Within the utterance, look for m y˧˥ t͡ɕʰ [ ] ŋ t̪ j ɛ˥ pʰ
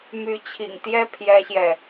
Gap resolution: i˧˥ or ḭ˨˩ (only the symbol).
ḭ˨˩